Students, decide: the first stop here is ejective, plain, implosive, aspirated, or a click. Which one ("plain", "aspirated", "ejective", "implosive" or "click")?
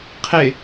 aspirated